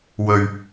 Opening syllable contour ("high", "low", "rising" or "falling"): low